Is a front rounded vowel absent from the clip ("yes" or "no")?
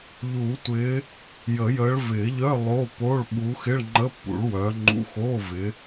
no